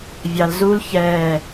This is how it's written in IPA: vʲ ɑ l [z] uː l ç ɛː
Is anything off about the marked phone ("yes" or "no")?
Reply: no